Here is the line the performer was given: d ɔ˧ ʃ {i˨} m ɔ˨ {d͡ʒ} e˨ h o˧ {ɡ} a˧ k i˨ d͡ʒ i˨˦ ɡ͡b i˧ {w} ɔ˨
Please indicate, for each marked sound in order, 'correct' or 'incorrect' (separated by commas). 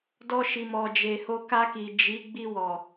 correct, correct, incorrect, correct